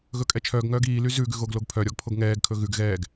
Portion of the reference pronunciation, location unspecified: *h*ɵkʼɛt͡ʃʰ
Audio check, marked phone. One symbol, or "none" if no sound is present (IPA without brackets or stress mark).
ɣ